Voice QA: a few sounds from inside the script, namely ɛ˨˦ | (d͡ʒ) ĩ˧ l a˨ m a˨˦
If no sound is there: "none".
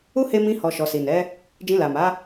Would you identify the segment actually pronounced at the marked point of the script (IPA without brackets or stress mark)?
d͡ʒ